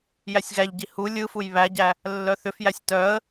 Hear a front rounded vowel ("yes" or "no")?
yes